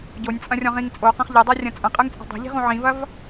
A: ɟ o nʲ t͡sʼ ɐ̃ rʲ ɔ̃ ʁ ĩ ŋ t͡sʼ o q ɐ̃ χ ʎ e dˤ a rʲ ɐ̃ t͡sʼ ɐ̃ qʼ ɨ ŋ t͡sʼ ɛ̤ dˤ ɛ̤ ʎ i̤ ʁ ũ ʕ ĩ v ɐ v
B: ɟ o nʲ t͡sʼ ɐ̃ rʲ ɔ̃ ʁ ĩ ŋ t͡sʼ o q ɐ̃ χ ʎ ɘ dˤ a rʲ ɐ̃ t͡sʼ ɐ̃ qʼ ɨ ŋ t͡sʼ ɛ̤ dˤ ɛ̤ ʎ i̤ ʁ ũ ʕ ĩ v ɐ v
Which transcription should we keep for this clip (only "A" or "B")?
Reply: B